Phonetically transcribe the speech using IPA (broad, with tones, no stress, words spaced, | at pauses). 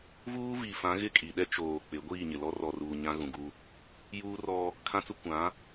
vuː˦viː˨fã˨˦ ɣɪ˦˨kʼi˨ɗɛ˦ t͡ʃoː˨ k͡pɪ˨˦ ɡʷiː˦˨ɲɪ˨lɔ˦ rɔ˨ruː˨ ɲã˦ɣũ˨ɡu˦ | juː˦rɔ˦ | kʰã˦t͡sʊ˦ kʷã˨˦